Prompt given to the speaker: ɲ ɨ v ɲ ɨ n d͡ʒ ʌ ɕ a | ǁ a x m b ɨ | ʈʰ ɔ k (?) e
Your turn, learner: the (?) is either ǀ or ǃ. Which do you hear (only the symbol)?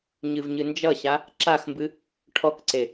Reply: ǀ